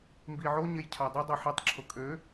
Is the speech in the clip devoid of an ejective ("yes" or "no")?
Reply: no